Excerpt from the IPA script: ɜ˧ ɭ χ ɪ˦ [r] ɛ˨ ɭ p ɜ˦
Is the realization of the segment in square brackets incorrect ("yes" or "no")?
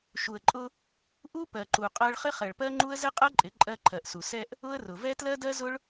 yes